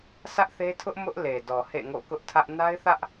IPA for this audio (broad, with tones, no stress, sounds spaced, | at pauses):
s ä˦ ʔ θ e˦ tʰ ʊ˦ ʔ m ʊ˦ ʔ l e˨ d ɔ˨ h ḛ˦˨ ŋ o̰˦˨ k ʊ˦ ʔ tʰ ä˦ ʔ n a˦ ɪ̯ θ ä˦ ʔ